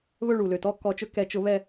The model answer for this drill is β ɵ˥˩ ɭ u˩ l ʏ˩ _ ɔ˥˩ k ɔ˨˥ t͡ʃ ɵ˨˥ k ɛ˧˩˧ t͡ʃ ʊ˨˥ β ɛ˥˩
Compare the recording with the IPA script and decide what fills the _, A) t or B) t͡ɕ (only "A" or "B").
A